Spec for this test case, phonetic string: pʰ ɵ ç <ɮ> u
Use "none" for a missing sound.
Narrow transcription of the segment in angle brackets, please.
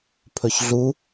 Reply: ɮ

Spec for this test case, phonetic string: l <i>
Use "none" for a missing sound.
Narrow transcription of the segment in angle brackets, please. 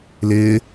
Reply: ɪ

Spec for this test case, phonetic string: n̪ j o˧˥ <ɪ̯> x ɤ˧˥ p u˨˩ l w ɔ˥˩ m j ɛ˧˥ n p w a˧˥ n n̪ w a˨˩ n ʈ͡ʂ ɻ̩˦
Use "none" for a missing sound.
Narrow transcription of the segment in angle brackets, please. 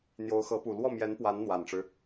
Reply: ʊ̯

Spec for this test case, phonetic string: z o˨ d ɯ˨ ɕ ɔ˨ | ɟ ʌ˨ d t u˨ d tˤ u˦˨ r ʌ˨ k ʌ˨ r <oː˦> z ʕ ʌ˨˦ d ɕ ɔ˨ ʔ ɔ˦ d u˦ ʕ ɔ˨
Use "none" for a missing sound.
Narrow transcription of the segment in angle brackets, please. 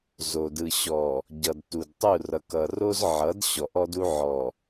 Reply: o˦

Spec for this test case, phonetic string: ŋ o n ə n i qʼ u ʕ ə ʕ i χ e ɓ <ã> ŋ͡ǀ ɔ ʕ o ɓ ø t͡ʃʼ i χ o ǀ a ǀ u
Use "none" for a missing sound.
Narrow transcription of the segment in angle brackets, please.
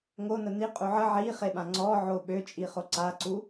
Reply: ã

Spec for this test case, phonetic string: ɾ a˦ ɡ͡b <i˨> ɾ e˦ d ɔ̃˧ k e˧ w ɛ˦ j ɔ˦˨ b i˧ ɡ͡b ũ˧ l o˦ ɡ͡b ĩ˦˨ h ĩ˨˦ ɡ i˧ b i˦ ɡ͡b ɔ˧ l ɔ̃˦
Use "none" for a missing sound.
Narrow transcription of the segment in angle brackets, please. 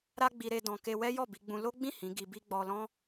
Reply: i˧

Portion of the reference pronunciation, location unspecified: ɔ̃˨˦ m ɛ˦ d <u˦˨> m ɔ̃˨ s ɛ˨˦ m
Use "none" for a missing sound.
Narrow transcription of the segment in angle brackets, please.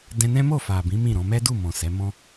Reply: u˦˨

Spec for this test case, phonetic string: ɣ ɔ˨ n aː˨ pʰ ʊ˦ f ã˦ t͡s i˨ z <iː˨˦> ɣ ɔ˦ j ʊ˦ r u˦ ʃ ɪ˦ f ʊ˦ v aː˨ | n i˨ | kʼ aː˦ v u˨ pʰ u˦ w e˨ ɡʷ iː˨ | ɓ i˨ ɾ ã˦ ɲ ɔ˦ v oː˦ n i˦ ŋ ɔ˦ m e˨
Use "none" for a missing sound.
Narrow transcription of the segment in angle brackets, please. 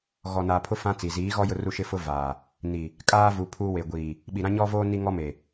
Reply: iː˨˦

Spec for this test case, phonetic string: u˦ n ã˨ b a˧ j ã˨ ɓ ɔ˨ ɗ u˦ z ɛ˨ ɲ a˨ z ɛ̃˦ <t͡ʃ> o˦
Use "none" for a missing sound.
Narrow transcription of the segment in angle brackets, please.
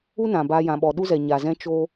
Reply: t͡ʃ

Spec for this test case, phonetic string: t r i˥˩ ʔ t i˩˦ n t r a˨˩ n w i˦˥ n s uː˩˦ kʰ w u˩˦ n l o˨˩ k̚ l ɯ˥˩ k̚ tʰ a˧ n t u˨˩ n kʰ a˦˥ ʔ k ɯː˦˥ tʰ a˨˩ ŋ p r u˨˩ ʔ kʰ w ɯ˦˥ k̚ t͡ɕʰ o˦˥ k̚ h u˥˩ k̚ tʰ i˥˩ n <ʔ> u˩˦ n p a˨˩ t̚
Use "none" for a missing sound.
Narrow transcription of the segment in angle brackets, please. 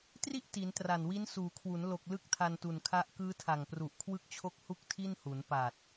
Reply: h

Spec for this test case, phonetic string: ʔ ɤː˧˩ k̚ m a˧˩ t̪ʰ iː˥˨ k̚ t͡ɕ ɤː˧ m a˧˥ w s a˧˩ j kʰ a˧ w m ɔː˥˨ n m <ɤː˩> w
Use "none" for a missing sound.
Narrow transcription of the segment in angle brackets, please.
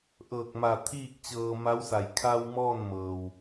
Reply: ɤː˩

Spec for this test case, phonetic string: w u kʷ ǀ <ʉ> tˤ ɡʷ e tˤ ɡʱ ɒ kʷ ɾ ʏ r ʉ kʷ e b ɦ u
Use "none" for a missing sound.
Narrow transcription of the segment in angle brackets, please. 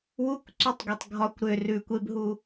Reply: ʉ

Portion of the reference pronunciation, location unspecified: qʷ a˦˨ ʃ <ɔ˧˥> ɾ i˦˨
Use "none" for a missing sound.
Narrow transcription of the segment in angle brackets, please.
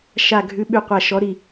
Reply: ɔ˧˥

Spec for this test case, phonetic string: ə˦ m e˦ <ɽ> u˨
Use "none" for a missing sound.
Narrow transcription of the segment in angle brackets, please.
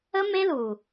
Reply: l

